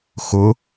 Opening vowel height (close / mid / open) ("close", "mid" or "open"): close